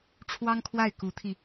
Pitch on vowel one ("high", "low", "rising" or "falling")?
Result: high